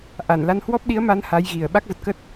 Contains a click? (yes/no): no